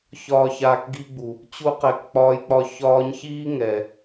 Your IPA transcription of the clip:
ç ɒː˨ ç aː˨ k ɡ i˧ ɡ͡b u˨ | t͡ɕ u˧ q ɛ˨ k k͡p ɒː˧ j k͡p ɒ˧ ç ɒː˧ ɲ ç iː˦ ŋ ɛ˨

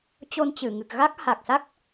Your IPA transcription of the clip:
t͡ɕ o˧ n t͡ɕ ɨ˧˩ ŋ ɨ˨˩ k̚ ɣ a˦˥ k̚ h a˨˩ k̚ s a˦˥ k̚

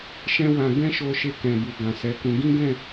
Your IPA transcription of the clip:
ʃ ɛ̃˦ w ã˧ ɡ ɛ̃˦ ʃ o˧ ʃ e˧ k ɛ̃˨ b u˨ ɡ ã˨ s ɛ˨˦ k ũ˧ ɡ ĩ˦ ɡ ɛ̃˦˨

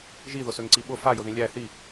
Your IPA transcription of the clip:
ʒ i ð ʊ s ø ŋ ǀ i ɓ ʊ f a j ʊ ð ĩ lʲ æ θ i

